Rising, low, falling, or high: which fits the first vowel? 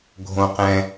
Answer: high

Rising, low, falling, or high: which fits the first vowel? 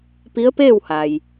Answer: rising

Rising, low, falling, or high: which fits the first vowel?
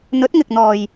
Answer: rising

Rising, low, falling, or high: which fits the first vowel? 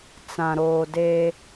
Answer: low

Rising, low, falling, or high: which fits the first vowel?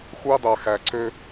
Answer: high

